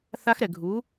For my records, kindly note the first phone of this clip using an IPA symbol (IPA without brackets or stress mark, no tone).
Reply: θ